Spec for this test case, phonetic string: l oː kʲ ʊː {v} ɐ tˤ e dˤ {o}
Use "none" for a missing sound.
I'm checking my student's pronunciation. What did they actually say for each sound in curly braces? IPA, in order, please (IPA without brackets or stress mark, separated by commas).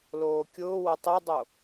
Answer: w, o